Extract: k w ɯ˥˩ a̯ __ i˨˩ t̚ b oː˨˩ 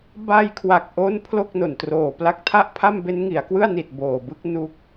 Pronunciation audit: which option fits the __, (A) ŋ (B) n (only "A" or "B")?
B